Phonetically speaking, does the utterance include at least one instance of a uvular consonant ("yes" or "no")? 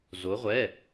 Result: yes